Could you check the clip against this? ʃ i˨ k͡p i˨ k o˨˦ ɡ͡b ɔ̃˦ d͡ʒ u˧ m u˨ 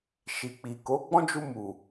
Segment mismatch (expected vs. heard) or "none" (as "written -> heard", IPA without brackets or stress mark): none